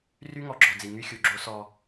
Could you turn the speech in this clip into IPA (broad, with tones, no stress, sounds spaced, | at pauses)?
r y˦ ŋ ɔ˨ ɡ͡ǁ ɔ˨ d͡z i˨ ŋ y˦ xʲ u˨ ɡ͡ǁ o˦ s ɔ˦